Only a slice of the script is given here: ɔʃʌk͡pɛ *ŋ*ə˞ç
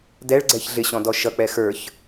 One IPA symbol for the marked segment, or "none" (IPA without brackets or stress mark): x